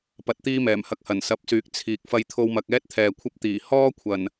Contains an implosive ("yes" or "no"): no